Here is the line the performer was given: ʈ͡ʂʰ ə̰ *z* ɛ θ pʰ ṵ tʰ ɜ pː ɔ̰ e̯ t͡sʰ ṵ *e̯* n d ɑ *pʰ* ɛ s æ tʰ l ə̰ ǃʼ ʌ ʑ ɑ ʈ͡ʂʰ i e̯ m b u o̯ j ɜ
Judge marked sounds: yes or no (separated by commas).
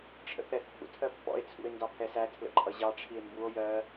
no, yes, yes